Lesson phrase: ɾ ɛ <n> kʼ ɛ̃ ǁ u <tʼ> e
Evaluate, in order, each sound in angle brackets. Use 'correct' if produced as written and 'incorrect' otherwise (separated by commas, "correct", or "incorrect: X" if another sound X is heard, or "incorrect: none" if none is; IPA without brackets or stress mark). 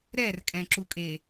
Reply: incorrect: r, incorrect: kʼ